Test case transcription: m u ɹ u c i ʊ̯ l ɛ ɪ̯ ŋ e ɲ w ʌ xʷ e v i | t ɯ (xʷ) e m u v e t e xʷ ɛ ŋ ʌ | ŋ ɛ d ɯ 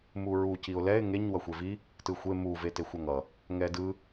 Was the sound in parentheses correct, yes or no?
yes